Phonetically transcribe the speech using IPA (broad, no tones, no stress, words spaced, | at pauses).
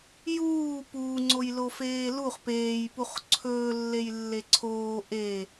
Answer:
juː puːŋ͡ǀojlofeː luχ peːjpuχ ǀʰɵːlːejlːe ǀʰoː ʔe